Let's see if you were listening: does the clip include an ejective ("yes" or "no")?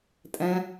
yes